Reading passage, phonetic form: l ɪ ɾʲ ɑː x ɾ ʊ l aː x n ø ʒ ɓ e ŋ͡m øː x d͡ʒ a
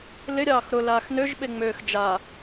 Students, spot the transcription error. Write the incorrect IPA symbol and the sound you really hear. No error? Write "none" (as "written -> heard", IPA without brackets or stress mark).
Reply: none